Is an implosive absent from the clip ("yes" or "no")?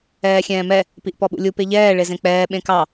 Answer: no